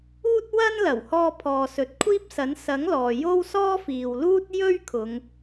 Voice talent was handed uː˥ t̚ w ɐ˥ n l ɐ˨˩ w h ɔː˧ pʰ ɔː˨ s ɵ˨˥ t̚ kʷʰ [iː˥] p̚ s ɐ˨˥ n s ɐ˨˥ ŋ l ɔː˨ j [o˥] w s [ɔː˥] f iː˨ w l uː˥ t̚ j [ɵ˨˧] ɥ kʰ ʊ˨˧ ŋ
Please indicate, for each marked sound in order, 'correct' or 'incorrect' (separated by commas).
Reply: correct, correct, correct, incorrect